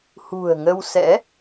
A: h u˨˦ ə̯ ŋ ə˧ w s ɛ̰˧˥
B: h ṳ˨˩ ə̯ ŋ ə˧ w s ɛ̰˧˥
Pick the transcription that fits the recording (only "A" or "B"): B